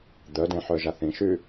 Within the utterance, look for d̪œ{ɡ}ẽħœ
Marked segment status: incorrect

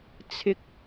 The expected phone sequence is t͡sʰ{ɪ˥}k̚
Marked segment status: correct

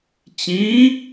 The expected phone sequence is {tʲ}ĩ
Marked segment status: incorrect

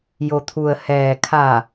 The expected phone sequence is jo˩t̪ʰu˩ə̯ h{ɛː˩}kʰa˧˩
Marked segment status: correct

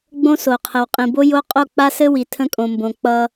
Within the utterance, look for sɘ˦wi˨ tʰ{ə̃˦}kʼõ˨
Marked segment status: correct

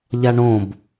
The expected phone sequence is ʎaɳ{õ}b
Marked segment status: correct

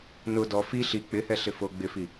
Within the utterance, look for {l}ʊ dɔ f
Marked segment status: incorrect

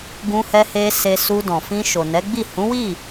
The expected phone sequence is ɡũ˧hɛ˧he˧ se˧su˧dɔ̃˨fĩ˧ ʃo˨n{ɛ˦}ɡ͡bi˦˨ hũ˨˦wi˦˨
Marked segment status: incorrect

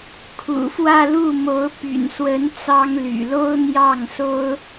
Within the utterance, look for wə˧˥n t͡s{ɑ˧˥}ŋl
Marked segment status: incorrect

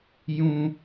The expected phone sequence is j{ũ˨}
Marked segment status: incorrect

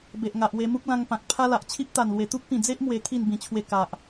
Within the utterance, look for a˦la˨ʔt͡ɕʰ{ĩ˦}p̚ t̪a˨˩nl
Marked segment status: incorrect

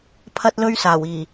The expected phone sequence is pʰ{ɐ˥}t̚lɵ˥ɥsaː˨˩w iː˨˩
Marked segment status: correct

